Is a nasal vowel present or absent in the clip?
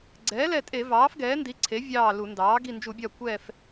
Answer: absent